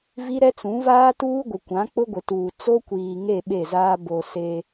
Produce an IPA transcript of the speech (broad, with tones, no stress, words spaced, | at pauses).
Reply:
vi˦ɾɛ˦t͡sũ˨˦ vaː˦tuː˦ɡʷɪ˨ kʷã˨˦k͡pʊ˦ɡʷɪ˨tuː˨ t͡so˦kʷiː˨ŋe˦˨ ɓe˦˨zaː˦ bo˨ se˦